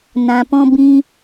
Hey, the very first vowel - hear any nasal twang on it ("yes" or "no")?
yes